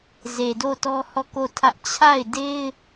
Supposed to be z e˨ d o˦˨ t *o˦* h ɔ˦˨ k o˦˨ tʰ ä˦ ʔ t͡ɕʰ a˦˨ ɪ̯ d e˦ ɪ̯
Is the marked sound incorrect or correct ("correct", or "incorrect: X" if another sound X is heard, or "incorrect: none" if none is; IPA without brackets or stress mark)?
incorrect: ɔ˦